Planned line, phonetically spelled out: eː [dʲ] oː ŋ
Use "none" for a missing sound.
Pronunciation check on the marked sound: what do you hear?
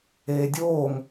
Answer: dʲ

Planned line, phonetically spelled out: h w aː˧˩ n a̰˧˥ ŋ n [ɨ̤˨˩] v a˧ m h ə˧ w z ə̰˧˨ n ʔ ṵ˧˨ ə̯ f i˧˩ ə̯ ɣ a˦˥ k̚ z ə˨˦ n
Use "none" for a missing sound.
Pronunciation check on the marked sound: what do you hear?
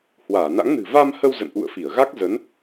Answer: ɨ̤˨˩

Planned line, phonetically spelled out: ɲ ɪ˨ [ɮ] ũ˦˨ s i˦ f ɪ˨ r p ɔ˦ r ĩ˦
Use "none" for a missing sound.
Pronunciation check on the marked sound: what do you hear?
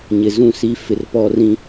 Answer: z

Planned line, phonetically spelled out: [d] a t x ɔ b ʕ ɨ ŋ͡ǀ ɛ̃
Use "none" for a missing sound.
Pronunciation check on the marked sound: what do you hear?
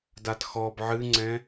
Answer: d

